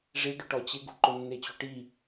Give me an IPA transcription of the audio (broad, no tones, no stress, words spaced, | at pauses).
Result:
ʐiɖʊ ʈɔt͡ɕɪɡṳ ǃʊnːet͡ɕuʈi